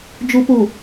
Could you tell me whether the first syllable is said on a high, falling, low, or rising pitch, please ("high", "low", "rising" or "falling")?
low